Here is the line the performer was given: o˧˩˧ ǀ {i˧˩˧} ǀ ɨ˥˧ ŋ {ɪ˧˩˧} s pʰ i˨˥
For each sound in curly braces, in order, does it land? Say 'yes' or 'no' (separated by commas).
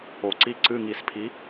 no, no